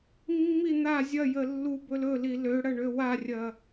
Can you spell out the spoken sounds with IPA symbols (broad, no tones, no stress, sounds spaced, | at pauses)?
mː i n̪ a zʲ ɐ j ə lː u b ɵ l ɵ l i l ø ɽ ɐ ɳ ø w a rʲ ɐ